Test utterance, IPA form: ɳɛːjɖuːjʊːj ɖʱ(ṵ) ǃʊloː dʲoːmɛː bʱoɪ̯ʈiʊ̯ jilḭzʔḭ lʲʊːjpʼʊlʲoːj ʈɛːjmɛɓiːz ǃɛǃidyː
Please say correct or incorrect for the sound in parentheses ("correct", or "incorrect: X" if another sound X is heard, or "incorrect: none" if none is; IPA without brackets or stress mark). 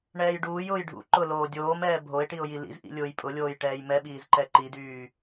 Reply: correct